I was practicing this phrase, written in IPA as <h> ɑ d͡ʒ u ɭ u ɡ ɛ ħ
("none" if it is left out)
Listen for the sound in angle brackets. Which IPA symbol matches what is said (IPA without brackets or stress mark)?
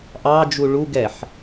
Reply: ʔ